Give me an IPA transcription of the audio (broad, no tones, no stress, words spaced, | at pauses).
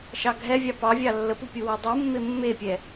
ʃɑɡʱɛvʲɑ pɑvʲɑ lːəpu pʲuwadˤumːe mːepʲɛ